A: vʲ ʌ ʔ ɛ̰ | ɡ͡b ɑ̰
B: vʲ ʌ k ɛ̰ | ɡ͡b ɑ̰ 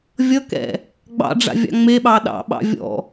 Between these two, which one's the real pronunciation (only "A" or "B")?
B